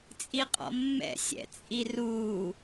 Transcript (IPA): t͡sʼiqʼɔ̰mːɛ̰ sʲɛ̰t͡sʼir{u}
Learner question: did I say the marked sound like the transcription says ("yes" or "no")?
yes